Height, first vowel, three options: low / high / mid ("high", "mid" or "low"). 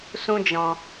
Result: high